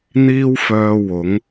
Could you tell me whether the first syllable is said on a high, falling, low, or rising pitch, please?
high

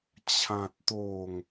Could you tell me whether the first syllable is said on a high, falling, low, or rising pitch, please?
low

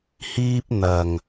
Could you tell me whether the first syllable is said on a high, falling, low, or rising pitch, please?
high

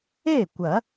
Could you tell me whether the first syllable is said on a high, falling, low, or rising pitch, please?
falling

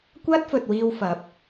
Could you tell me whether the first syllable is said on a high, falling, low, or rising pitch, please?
high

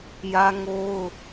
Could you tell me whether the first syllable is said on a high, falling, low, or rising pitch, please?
high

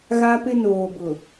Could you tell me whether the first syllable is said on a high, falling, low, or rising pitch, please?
high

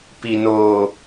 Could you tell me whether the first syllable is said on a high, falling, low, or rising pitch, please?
low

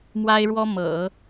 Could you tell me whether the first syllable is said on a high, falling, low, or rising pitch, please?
high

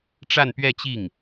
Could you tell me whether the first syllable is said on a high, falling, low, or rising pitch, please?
falling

